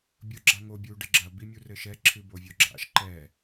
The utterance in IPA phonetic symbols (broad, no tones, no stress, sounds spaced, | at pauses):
bʲ o ɡ͡ǁ a ŋ o bʲ u ɖ ɘ ɡ͡ǁ ɐ b i mʲ u r ɘ ʃ ɛ ǁʰ ɨ b o vʲ o ɡ͡ǁ a̰ ʃ ǃ ɛ